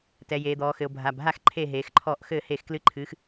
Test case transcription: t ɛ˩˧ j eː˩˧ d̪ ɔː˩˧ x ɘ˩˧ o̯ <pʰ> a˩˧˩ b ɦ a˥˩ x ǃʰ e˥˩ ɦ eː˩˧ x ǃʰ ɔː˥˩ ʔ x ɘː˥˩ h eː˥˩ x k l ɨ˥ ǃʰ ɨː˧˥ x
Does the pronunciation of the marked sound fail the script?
yes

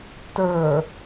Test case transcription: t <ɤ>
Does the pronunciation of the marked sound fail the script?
yes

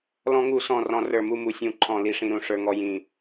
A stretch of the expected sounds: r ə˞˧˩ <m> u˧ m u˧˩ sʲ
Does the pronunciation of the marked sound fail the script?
no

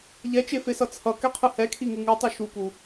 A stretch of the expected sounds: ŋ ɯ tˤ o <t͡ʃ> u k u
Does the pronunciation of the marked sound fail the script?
yes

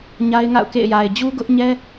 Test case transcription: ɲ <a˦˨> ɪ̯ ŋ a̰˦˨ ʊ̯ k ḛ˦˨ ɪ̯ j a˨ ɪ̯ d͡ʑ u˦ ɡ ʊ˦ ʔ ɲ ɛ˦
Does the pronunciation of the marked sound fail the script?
yes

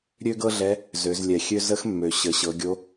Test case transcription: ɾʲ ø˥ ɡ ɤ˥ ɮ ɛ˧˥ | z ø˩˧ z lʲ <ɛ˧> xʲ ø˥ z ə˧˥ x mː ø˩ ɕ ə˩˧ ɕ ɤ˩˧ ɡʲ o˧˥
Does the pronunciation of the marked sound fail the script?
yes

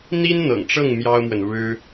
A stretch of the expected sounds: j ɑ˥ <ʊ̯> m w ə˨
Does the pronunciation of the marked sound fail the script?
no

